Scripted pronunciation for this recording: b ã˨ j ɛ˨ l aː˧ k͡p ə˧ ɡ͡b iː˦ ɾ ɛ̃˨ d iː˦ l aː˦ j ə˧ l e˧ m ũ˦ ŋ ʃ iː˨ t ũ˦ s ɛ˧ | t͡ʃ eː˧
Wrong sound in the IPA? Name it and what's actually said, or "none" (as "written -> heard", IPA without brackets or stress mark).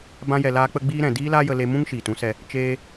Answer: ã˨ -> ã˧